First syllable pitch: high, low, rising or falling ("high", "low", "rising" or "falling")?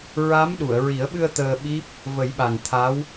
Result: rising